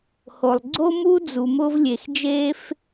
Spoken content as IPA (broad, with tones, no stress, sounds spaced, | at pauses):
h o˩ lˠ ɡ͡ǀ o˥ m u˥ d͡z u˩ m ʊː˧ v lʲ e˩ x d͡ʒ eː˧ f